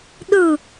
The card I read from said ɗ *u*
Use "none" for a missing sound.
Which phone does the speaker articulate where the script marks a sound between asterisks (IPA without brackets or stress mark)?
ɯ